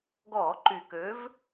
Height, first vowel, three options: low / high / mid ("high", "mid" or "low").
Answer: mid